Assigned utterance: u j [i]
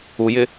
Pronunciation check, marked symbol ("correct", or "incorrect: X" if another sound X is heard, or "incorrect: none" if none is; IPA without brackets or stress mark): incorrect: ɪ